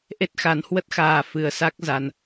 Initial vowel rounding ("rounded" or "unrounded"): unrounded